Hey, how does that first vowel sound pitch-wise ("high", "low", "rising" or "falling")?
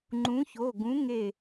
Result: rising